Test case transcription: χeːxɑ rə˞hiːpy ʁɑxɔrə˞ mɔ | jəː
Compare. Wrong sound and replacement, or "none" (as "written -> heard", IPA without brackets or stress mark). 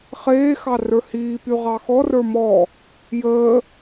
none